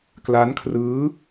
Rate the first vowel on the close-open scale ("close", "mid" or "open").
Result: open